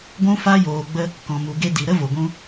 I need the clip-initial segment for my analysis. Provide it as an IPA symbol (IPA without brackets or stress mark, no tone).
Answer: ɡʷ